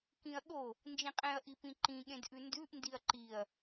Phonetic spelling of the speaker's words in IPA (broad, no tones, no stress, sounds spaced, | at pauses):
k ĩ ɐ̯ ɠ o | n d͡ʒ ĩ qʼ ẽ ɐ̯ ʔ i p ĩ ǃ ĩ ɠ ẽ d ʔ ʉ n d ʉ ʔ n d i ɐ̯ ǃ i ɐ̯